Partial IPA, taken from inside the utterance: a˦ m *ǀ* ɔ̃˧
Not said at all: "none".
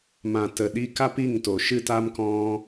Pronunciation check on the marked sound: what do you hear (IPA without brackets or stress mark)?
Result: k